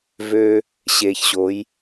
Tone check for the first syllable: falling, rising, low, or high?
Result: high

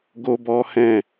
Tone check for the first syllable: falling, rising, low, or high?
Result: high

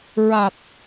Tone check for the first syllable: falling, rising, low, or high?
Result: low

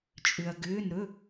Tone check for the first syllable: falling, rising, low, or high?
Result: low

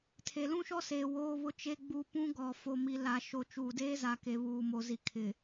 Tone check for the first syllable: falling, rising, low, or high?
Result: low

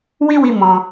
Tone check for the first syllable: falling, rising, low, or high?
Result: high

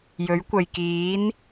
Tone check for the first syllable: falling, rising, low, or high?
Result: rising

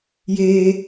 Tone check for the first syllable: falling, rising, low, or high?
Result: low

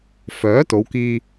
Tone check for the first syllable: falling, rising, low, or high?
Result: rising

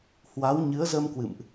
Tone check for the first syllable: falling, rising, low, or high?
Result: rising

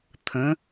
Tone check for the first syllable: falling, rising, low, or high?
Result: rising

